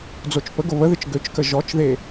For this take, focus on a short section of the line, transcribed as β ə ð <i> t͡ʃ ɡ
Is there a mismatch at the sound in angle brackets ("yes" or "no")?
yes